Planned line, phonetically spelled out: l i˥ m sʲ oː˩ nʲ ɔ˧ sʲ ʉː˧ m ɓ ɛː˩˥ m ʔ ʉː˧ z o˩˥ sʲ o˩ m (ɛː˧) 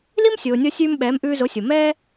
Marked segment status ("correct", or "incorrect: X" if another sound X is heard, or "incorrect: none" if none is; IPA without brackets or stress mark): incorrect: ɛː˥